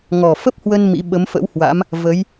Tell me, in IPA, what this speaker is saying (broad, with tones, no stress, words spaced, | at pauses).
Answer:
ŋɔ˨˩fə˦˥p̚hwə˧n mḭ˧˥ ɓə˨˦mfə̰˧˥whwa̰˧˥m | və˨˦j